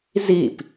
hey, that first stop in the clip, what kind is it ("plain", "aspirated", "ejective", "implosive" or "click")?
plain